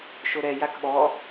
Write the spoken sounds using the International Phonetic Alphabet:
ʃ o ɾ ɛ j a k ɓ ɔ

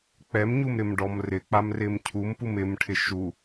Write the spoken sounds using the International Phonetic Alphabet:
k͡p ɛ m ɲ u m ɾ ɪ m ɖ ɔ m r ɪ k͡p a m r ɪ m cʰ u m p u m ɪ m ʈʰ ɪ ʃ u

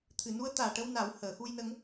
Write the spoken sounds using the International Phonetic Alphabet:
t̪ʰ ɨ˨˩˨ n u˧˥ ə̯ t̪ aː˨˩ ʈ ə˧ w n a˨˩˦ w h əː˨˩˨ x u˧ j n ə˧˥ ŋ

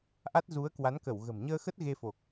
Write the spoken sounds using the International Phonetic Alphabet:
ʔ a˦˥ t̚ z u˨˦ ə̯ k w a˨˦ n k ə˧˩ w ɣ ə̤˨˩ m ɲ əː˧ x ə˦˥ t̚ ɣ e˧ f o˨˩ k̚

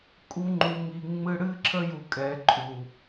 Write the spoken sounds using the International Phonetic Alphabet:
kʼ u˦ ŋ͡ǃ u˧ ŋ i˧ ŋ͡m ɨ˦ ɽ ɨ˦ ǁʰ ə˦ j u˧ kʼ ɛ˨˦ ǃʼ u˨

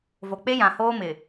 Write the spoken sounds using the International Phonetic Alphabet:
v o˨ k͡p e˦ j ã˨ h oː˦ m ɪ˨

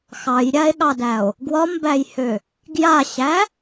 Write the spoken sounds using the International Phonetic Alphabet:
x ɑ j ɾʲ a e̯ ɠ ɑ d æ o̯ | ɡ w ɒ m b æ j h ø | ɡ j a ɕ æ

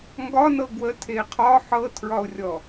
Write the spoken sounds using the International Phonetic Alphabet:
ŋ ɡ ɒ n ɤ ɡ w ə tʰ e qʰ ɒ ħ ɤ tʰ ɹ ɒ ʊ̯ rʲ ɔ

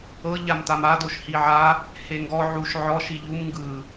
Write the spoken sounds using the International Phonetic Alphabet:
ɤ ʎ a m t a m a d o ʃ h i ʕ a | h e ŋ ɡ ɔ ʕ u ʃ ʕ ɔ ʃ i ʎ u m ŋ ɡ ɯ

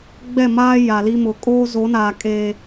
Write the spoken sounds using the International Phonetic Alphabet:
ɡ͡b ɛ˦˨ m aː˦ j a˨ l i˦ m ʊ˨˦ kʼ oː˦ z o˨˦ n aː˨ kʼ eː˨

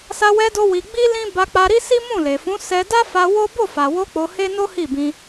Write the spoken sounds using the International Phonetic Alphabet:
s a˧ w ɛ˧ d o˧ w i˧ ɡ͡b i˦ l ĩ˦ b a˧ k͡p a˧ ɾ i˦ s i˦ m ũ˦˨ l e˨ f ũ˨˦ s ɛ˧ d a˦ f a˧ w o˦ b o˦˨ f a˨ w o˧ k͡p o˧ h e˦ n o˦ h i˦˨ b ĩ˧

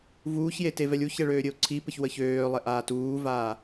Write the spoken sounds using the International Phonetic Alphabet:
v uː ç j e t e v ɛ lʲ u ç ɛ ɭ øː ɾʲ ɘ o̯ ǀʰ i p ɘ ç w ə ç øː lˠ ɛ ʔ aː t uː v aː

